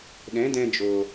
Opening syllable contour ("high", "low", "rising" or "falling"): rising